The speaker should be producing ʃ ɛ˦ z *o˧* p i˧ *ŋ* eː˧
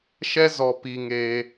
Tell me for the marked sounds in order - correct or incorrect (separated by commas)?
incorrect, correct